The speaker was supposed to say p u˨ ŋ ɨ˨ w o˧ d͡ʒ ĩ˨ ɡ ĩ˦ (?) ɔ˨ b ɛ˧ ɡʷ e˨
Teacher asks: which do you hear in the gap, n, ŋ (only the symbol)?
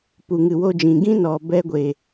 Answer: n